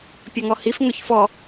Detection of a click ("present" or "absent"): absent